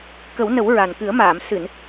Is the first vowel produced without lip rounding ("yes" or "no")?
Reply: yes